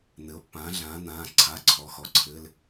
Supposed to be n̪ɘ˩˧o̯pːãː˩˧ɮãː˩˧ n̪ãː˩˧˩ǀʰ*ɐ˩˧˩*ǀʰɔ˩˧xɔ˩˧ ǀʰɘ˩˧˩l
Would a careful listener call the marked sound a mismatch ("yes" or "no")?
yes